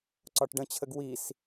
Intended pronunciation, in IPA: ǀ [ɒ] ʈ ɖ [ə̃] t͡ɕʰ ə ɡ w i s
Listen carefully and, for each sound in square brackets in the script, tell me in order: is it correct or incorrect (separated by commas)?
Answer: correct, correct